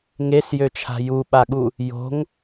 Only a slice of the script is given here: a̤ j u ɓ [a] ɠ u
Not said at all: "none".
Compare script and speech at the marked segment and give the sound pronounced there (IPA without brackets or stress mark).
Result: a